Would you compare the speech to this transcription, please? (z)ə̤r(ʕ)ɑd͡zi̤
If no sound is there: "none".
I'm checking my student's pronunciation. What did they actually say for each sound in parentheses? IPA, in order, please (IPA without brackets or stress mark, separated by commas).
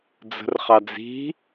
d͡z, χ